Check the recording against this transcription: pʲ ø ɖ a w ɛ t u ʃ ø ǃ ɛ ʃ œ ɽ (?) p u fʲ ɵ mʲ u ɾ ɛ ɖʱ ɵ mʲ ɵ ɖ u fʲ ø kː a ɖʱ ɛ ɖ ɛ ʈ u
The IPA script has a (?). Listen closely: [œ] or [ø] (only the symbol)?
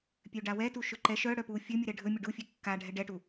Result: œ